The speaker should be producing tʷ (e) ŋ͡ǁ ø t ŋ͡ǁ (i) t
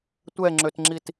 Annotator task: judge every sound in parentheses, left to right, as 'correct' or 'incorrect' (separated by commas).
incorrect, correct